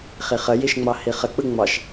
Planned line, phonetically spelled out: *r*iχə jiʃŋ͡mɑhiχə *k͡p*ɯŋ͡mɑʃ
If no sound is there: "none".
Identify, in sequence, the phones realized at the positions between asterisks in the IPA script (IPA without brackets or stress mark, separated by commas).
χ, k͡p